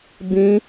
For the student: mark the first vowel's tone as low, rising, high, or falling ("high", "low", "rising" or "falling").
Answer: high